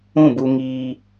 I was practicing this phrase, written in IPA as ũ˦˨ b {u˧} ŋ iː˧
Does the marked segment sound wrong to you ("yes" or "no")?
no